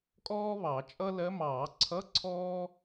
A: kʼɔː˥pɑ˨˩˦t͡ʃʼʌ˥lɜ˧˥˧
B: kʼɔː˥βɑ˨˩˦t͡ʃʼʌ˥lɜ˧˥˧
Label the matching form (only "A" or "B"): B